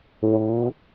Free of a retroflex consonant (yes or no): yes